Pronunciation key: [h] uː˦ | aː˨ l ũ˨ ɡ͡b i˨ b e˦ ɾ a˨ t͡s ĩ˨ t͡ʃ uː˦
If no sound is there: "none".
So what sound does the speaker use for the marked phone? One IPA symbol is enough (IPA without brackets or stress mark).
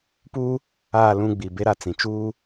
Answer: p